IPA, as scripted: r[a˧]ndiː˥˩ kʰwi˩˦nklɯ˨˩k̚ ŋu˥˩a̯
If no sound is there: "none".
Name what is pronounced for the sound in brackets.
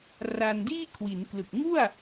a˧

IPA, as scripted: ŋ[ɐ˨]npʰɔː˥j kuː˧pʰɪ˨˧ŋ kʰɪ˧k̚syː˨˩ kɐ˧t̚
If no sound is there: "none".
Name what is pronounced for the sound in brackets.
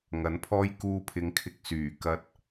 ɐ˨˥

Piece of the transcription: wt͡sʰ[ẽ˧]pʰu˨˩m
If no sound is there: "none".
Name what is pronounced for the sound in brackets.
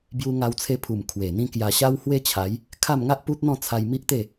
e˧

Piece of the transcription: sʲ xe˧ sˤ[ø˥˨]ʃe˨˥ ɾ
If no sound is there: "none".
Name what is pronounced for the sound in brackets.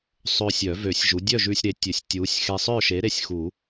œ˥˨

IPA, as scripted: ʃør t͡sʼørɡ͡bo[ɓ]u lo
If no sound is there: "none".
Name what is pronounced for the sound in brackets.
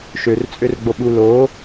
ɓ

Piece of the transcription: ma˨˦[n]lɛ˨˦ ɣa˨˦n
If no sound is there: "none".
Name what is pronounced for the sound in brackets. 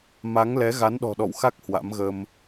ŋ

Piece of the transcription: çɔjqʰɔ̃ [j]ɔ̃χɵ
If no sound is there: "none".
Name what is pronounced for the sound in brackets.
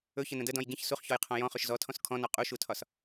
j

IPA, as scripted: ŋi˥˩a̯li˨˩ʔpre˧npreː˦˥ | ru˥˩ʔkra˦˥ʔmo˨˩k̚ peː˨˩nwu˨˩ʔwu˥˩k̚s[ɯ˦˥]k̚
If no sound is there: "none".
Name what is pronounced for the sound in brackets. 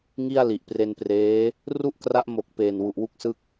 ɯ˥˩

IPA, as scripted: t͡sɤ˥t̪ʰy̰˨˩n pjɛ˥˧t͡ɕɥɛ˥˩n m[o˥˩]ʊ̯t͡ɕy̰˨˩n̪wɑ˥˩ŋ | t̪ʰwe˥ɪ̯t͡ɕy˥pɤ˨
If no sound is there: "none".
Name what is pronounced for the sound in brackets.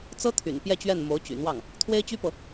o˧˥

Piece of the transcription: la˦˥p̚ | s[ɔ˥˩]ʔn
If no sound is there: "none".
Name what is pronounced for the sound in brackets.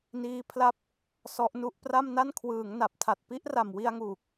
ɔ˦˥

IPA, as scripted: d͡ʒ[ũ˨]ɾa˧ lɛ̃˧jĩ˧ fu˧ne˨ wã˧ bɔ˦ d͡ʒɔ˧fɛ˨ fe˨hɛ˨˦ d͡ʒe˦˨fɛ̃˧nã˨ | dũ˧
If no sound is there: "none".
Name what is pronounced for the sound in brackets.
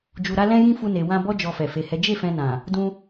u˨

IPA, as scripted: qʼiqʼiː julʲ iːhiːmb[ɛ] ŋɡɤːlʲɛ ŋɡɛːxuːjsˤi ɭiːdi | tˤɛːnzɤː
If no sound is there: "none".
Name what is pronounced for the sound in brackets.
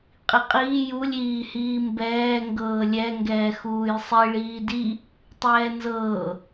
ɛː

